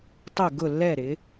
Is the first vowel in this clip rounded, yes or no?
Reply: yes